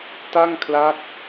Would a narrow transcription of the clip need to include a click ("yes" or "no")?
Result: no